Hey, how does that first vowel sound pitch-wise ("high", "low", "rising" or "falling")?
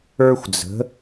high